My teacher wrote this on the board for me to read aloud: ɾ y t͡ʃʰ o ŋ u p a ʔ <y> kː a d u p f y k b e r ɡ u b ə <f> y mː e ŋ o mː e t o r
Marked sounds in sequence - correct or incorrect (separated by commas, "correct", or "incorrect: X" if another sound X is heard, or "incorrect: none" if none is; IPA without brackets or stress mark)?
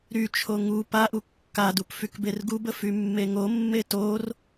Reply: incorrect: u, correct